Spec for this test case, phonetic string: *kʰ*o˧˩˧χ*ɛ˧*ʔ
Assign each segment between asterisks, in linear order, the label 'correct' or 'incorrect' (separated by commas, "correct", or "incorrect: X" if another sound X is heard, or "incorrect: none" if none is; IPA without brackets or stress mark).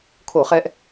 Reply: correct, correct